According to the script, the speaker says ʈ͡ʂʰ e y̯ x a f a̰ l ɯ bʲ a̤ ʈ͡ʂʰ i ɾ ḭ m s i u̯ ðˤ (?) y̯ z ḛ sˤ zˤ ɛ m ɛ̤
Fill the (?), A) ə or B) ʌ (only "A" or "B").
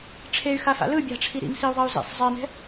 B